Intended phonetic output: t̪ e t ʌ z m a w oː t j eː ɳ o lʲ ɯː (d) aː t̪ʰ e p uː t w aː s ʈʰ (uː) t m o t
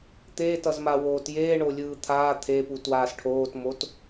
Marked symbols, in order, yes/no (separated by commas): no, no